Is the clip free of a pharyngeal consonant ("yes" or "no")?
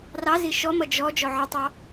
no